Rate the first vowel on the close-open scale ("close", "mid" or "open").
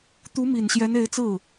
close